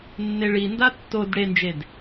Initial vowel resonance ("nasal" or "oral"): oral